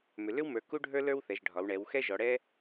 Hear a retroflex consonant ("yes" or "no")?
yes